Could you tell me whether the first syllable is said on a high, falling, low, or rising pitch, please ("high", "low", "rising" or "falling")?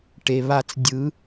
low